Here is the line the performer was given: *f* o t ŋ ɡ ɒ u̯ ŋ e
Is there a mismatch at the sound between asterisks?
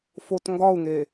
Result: no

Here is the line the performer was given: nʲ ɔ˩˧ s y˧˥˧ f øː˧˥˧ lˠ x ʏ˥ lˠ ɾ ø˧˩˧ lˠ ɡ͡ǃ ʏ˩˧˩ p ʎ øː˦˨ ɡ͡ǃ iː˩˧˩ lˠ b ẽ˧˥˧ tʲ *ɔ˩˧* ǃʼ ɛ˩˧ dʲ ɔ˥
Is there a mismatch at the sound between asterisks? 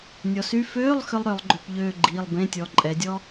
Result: no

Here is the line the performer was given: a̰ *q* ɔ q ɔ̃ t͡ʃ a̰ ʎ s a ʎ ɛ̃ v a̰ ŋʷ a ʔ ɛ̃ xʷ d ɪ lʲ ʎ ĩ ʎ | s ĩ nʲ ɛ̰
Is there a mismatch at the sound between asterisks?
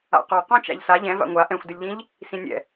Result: no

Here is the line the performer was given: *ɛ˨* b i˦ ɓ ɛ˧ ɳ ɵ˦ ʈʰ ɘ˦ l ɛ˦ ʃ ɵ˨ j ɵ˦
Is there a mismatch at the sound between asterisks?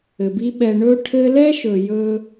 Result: yes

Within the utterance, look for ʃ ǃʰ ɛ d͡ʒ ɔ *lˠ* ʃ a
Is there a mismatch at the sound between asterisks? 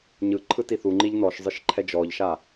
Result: yes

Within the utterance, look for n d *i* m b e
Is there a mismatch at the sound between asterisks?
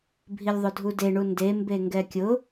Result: yes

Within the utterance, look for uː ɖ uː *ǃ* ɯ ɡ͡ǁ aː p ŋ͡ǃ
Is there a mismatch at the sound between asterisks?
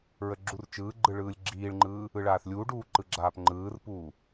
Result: no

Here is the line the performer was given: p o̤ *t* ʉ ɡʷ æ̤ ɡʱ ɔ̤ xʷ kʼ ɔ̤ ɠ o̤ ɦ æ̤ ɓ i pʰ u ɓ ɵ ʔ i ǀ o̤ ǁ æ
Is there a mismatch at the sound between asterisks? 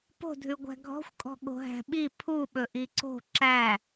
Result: yes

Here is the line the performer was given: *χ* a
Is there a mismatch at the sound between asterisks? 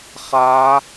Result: no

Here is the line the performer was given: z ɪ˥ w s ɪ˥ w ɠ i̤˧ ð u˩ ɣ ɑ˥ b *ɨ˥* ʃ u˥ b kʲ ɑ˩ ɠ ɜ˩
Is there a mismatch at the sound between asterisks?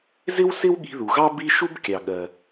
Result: yes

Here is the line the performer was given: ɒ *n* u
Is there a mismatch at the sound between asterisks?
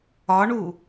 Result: yes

